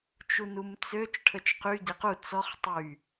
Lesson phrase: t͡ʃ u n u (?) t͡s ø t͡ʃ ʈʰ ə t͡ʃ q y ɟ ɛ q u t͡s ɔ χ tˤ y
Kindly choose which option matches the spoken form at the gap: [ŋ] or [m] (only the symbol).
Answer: m